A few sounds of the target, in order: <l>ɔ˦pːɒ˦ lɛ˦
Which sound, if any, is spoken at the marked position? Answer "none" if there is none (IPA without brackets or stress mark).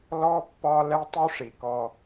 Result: l